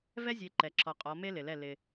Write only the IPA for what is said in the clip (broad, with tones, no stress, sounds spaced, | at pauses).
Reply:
v ɛ˦ zʲ e˨˦ ǃ ɛ˨ ǁʰ ɔ˨ qʼ ɔ˨˦ m e˦ l ɪ˨ l ɛ˦˨ l ɪ˦